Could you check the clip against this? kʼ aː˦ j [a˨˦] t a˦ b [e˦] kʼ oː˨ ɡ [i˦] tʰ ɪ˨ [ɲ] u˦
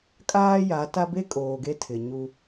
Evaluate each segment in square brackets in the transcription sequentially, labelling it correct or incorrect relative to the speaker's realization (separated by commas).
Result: correct, correct, incorrect, correct